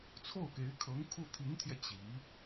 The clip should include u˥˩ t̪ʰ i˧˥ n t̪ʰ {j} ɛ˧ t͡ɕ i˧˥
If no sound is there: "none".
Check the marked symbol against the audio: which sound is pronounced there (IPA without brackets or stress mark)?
j